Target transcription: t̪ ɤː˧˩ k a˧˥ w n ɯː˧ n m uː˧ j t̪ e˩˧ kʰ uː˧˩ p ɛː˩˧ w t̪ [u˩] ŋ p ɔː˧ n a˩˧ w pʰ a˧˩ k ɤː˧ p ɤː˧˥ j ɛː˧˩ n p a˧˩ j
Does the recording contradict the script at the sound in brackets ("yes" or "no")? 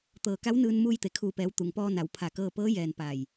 no